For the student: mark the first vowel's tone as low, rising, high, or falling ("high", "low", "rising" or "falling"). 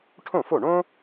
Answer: falling